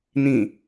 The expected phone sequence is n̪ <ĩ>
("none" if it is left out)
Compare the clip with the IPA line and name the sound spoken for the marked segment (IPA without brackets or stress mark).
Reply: ĩ